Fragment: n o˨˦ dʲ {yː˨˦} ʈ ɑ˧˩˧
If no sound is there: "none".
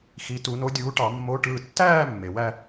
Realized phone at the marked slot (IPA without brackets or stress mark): uː˨˦